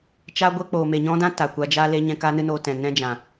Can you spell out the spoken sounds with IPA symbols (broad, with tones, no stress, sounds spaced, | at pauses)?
t͡ʃ a˦ ɡʷ ɛ˦ k͡p oː˨ m e˨ ɲ ɔ̃˦ d ã˦ t a˨ kʷ a˧ d͡ʒ aː˦ l e˦ ɲ ɛ̃˧ k aː˦ n ɨ˦ n oː˧ t ɛ̃˨ n ɛ̃˦ d͡ʒ ã˨